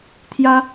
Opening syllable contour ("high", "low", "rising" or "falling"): high